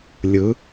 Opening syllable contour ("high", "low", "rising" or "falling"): rising